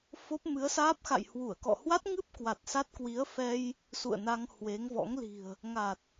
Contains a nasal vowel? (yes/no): no